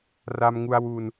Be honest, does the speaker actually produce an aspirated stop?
no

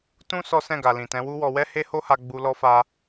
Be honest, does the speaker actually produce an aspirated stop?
no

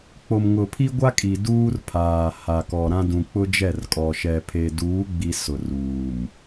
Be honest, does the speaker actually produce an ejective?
yes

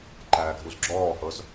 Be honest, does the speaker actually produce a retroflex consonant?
no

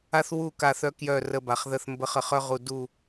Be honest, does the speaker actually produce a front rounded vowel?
yes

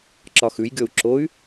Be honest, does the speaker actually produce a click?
yes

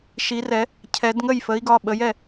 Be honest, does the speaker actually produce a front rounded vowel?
no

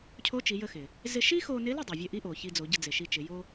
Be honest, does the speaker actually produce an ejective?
no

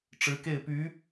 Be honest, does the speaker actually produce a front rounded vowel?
yes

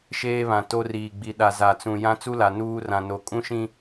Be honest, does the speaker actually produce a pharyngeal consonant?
no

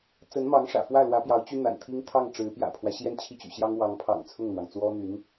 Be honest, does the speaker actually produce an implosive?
no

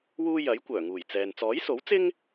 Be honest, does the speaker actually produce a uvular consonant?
no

